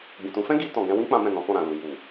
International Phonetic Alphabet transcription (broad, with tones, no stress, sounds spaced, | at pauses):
ɡ͡b ĩ˨ t ũ˨˦ f ɛ̃˦ ɡ i˧ t ɔ̃˨ ɡ ɛ̃˧ w ĩ˦ k͡p ã˦ m ɛ̃˦˨ n ɔ̃˨˦ f ɔ̃˦˨ ɾ ã˨ l u˨ j u˨